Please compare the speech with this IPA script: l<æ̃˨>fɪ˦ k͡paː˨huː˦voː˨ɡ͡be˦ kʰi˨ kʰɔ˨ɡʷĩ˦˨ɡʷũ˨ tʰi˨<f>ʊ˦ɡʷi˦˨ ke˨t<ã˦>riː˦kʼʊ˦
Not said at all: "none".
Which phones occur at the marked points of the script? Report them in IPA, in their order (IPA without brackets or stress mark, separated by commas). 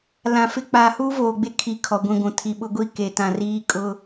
ã˨, ɓ, ã˨